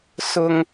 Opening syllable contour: high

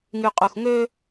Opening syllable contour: low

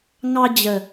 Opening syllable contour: high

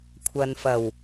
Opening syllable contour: low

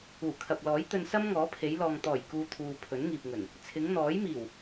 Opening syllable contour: low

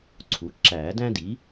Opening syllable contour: rising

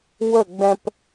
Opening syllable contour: falling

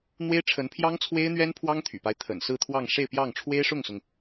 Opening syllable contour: high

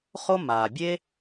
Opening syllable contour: high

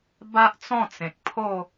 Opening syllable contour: high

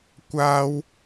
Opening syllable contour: high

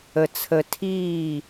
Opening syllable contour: low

